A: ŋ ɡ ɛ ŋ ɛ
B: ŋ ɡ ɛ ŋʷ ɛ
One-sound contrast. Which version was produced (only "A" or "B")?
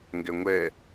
B